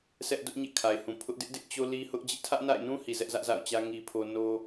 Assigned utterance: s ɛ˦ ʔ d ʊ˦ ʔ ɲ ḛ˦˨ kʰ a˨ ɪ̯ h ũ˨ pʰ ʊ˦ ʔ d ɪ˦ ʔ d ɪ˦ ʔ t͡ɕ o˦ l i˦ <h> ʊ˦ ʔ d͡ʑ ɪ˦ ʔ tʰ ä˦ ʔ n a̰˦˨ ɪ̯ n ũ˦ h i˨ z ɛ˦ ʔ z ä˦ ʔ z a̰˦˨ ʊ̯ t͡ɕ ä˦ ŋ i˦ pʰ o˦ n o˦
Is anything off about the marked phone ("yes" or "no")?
no